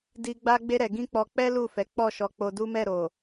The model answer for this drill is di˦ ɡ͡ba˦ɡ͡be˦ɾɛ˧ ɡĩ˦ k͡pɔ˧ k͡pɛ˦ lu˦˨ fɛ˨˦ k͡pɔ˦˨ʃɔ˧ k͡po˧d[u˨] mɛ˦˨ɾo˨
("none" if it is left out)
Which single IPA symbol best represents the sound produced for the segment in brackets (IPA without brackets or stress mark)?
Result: u˦